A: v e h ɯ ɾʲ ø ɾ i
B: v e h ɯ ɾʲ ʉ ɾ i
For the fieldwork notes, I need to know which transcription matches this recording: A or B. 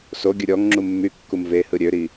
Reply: A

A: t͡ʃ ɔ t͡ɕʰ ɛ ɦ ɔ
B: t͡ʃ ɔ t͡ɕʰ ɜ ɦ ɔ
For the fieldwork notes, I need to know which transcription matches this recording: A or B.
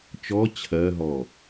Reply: B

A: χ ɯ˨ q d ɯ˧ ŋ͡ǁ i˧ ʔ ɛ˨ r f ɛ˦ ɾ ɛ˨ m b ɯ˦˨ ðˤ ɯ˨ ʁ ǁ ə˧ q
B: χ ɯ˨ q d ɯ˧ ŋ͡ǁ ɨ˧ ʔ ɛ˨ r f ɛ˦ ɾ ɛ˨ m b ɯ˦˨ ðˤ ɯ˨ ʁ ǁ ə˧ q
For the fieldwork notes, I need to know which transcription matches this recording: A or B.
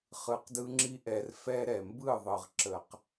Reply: A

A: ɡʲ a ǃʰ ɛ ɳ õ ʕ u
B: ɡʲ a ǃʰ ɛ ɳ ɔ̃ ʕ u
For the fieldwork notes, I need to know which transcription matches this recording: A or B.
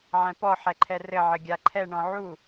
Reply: B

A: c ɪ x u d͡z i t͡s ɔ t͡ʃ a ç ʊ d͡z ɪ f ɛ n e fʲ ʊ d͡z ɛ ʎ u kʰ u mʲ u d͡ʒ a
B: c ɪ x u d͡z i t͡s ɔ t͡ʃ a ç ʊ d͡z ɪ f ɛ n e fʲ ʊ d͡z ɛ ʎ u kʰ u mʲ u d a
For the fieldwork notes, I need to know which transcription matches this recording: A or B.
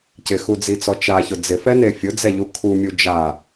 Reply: A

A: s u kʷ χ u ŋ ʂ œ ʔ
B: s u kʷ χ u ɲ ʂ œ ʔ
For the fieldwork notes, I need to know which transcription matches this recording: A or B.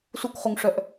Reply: A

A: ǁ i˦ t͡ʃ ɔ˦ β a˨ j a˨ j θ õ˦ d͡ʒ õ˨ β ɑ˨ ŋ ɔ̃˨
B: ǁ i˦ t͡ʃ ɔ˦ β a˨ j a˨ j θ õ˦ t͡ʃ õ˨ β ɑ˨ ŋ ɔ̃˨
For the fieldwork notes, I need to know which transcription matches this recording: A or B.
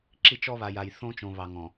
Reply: B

